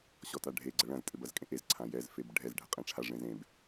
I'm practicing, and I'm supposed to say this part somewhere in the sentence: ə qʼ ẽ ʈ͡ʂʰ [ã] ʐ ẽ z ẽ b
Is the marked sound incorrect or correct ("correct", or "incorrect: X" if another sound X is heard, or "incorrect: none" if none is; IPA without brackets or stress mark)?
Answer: incorrect: a